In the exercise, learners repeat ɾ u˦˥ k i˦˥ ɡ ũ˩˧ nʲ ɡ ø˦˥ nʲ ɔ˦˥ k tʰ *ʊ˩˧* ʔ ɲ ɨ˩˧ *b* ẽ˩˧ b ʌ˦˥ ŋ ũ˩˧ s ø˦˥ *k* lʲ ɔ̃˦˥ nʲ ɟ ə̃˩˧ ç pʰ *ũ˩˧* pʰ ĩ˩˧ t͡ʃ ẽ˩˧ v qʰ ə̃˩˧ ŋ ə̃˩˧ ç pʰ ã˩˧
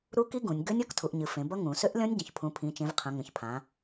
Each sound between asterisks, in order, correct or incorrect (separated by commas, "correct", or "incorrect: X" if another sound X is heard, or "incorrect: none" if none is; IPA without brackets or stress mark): incorrect: u˩˧, incorrect: f, incorrect: ʔ, correct